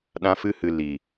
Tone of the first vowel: high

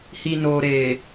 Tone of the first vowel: low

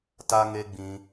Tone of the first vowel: high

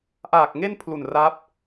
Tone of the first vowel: low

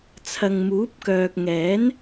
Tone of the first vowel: low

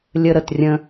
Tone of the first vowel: high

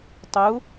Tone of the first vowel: rising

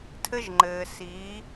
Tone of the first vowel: high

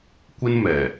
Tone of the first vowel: high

